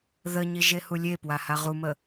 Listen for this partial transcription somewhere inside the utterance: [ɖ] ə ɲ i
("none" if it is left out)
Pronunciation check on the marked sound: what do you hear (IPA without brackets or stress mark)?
ð